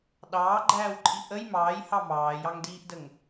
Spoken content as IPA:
ɗ ɑː ɡ͡ǃ æː w ǃʼ i ʔ ə j m ɑː j h ɑ m ɑː j ɑ ŋ d iː ʔ d ə ŋ

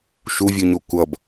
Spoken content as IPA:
ʃ u vʲ u ɲ o kʷ ʌ b

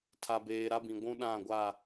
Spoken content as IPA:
tʰ a˨ b eː˨ ɾ a˦ b ĩ˨ ɡʷ ũ˦ ɗ ã˦˨ ɡʷ a˦˨

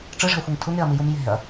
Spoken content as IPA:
ʈ͡ʂ ɨ ʐ ɛ̤ ɐ̯ xʷ i ŋ tʰ u ŋ e ɐ̯ m i j u m j e̤ ɐ̯

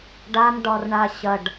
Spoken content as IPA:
ɖ a m ɖ ɒ r ɳ a ɕ ɐ ɖ

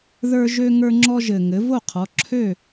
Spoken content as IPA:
ð ə˞˦ ʒ ø˦ ŋ ə˞˦ ŋ͡ǁ ɔ˦ ʒ ɘ˨˩ ŋ ɘ˩˧ v o˥˩ qʰ ɔ˩˧ ǁʰ ø˥˩

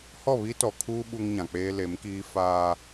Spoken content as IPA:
h ɔ˦˨ β i˦ t ɔ˨ kʰ uː˦ ɓ u˦ ŋ ɲ ã˨ k͡p eː˦ l e˨˦ m k iː˦ f aː˦

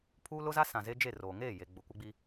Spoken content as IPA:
pʰ uː˦ l ʊ˦ z a˦ s ã˨ z e˦ d͡ʒ e˦˨ r oː˨ ŋ eː˦˨ j e˨ ɡ͡b ʊ˨ kʷ ɪ˦ ɡ͡b i˦

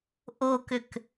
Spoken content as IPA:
ʔ o k ʏ k

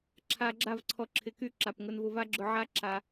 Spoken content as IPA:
ǁʰ a˧ ɡ͡ǁ a˦˨ v ǀʰ ɔ˧ ǁʰ ɪ˧ k y˦˨ ǁ a˨ p ŋ ʊ˧ n v ʊ˧ v a˦ ɡ͡ǁ ʊ˧ ʕ a˦ ǁ a˧

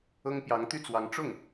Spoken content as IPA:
ɤ˥ ŋ p j ɑ˧˥ ŋ t̪ y˥˩ t͡s w ɑ˧˥ ŋ ʈ͡ʂ ʊ˥˩ ŋ

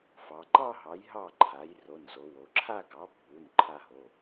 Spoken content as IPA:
f ɑ˩˧ ǃ ɑ˥˧ ɦ ɑ˩˥ j ɦ ɑ˥˩ ǃʰ a˩˥ j r o˩˧˩ n z o˩˧ w o˩˧ ǁʰ a˥˧ ɡ ɑ˩˥ pː u˩˧˩ n ǃʰ a˥˧ ɦ o˩˧˩

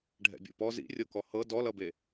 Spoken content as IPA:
ɖʱ ɛ̰ bʲ o̰ p ɔ z ḭ rʲ ɤ k ɔ h ɤ d ɔ l ʌ b e

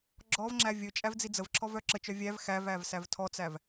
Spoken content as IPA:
ɡ͡ǁ ɔ v ŋ͡ǁ æ vʲ ɵ t͡ʃʼ æ v d͡z i d͡z ə v ǁʰ ɔ v œ ǁ ə t͡ʃ œ vʲ æ v x æ v æ v s æ v tʰ ɔ t͡s æ v

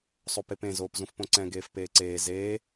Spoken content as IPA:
sˤ o p e p ẽ z oː p z ũ f p õ ǀ ɛ̃ ɡ eː f p eː ǀ eː z eː

